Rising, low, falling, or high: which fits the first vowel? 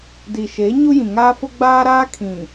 low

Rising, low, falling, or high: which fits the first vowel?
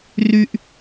low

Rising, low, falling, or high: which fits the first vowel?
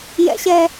high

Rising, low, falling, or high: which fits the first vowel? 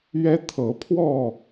high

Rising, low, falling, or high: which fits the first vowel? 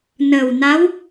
low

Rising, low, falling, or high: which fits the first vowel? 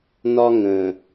high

